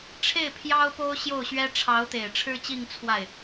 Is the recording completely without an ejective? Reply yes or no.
yes